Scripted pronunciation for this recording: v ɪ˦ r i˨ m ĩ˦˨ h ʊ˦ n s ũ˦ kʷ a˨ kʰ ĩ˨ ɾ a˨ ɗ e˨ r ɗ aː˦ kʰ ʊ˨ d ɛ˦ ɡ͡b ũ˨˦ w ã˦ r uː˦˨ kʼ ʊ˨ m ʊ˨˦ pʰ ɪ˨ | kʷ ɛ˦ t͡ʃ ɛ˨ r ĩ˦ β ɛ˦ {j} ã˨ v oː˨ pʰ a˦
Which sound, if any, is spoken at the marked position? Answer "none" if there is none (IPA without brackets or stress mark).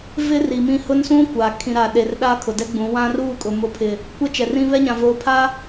ɲ